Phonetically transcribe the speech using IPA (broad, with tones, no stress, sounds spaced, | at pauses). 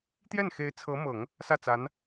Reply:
t̪ j ɛ˥˩ n x e˧˥ ɪ̯ t͡sʰ ɤ˧˥ m ɤ˨˩˦ ŋ | s ä˥˩ t͡s a˧˥ n